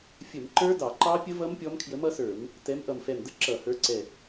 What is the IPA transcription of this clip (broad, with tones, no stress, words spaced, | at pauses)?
fʲə˧˩˧mǃə˞˦˥dɑ˧˩˧ǃɑ˦˥ pʲə˦˥vʌ˦˥m pʲɔ˦˥m kʰjə˨˥mʌ˨˥sə˞˧˩˧m | tɛ˨˥mʔʌ˧˩mfɛ˧˩mdə˦˥ ǁʌ˧˩˧hə˞˨˥ǀɛ˧˩